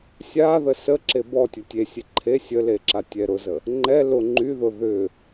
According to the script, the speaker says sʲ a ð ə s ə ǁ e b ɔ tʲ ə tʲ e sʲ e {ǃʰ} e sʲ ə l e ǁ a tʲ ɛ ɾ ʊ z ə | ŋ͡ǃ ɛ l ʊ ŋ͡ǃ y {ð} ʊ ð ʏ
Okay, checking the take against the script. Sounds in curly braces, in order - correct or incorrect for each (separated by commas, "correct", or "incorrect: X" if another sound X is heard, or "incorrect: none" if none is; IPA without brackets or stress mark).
correct, correct